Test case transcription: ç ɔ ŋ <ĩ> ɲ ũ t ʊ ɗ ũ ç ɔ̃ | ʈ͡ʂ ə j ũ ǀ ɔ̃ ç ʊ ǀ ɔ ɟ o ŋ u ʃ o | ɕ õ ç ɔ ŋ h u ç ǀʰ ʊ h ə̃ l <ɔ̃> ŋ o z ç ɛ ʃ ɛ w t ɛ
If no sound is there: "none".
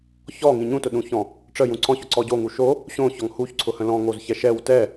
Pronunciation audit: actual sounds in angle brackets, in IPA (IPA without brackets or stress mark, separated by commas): ĩ, ɔ̃